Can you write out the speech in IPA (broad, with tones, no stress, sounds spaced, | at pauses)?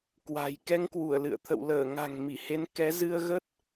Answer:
k w a̤˨˩ j k ɛ˧ ŋ k w u˧˩ ə̯ l ɨ̰˧˨ ə̯ t̪ʰ ə̰˧˨ w l əː˧˩ ŋ a̤˨˩ ŋ m i˧˩ h e˨˦ n k ɛ˨˦ z ɨ˧ ə̯ ɣ ə˦˥ t̚